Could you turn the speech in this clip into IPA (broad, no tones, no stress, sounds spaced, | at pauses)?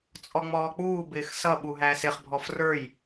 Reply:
t͡sʼ ɔ ŋ͡m ɔː k͡p uː b ɪː x s ʌ ɓ u ɦ æ s ɪ χ bʱ ɔ f r ə˞ j